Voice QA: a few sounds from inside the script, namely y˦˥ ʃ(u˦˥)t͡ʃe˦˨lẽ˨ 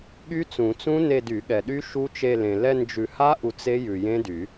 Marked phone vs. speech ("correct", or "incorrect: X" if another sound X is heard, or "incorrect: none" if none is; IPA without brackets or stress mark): correct